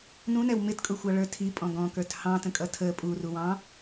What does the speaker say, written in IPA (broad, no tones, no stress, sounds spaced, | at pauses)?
n ũ n ɛ w m ɪ t kʼ ʊ xʷ ɑ ɭ ə˞ tʰ i pʼ ɔ̃ ɡ ɔ̃ k ə˞ t h ɑ̃ t ə̃ kʼ ʌ tʰ ə pʼ u r u w ɑ̃